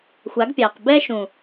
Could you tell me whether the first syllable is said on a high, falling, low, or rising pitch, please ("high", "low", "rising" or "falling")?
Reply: rising